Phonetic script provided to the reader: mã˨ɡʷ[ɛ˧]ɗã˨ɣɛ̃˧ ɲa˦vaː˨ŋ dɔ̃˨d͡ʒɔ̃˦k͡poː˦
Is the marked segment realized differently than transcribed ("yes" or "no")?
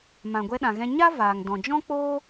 no